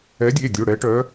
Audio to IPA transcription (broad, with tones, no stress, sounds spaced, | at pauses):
ɛ˨˥ dʲ e˩˧˩ dʲ o˩˧˩ ɽ ɛ˨˥ ʈ œ˨˥